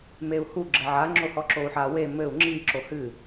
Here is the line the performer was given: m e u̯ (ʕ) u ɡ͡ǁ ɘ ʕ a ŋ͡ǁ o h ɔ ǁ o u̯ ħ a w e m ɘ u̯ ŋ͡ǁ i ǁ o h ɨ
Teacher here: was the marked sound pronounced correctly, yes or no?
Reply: no